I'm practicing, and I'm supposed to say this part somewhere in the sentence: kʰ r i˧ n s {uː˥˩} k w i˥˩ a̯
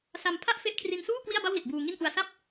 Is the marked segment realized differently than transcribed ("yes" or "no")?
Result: no